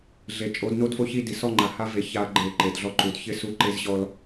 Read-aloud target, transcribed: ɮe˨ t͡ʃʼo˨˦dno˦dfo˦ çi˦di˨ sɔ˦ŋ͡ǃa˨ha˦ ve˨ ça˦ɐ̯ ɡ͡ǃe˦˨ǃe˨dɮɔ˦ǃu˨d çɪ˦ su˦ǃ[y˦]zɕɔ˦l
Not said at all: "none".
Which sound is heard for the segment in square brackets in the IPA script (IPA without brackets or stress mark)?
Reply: e˦